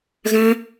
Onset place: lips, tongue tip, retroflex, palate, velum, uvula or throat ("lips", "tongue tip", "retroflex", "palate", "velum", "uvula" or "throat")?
velum